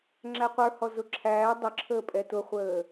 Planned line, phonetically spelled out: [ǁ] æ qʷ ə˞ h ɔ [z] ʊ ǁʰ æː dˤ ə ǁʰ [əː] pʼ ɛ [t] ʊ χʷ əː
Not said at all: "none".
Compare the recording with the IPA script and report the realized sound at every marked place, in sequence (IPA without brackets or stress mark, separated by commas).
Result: ŋ͡ǁ, z, əː, t